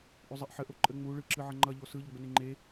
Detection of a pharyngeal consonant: present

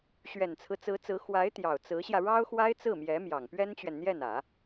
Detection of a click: absent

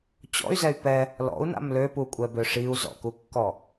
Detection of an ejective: present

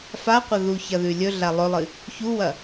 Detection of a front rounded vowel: absent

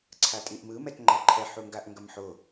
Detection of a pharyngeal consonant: present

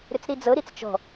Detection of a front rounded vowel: present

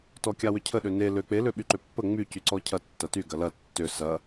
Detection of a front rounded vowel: present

